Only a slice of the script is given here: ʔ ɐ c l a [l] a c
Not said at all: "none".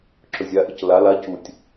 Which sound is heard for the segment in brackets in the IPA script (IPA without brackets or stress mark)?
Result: l